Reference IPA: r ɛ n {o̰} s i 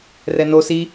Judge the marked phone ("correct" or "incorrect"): incorrect